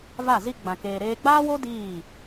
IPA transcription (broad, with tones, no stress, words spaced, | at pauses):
va˦˨zi˦ ɡ͡bã˧keː˧ ɾeː˧ɡ͡baː˦wo˦ diː˦˨